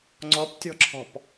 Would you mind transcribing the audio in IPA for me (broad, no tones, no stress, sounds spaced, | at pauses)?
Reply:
ŋ͡ǀ ɔ p tʲ ɔ̤ ǁʰ ɔ̤ p